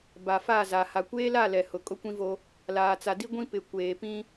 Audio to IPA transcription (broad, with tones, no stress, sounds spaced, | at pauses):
b a˨ f a˦˨ z a˨ h a˨ kʷ eː˦ l a˦˨ l ɛ˨ h ʊ˨ kʼ ʊ˦ kʷ ĩ˦ v o˦ | l aː˨ t͡s a˨ d i˦ ɡʷ ĩ˦ p ɪ˨ kʷ eː˨ p ĩ˦